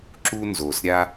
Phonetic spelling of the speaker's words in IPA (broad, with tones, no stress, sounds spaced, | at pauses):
ǁ u˦ n z o˨ s ɾʲ a˦